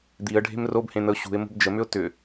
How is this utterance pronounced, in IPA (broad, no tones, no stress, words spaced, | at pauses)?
d̪iə̯ɖʱe̤m robhẽn̪əʊ̯ ɕṳɪ̯ mo̤bd͡ʒəmʏʊ̯ tʏ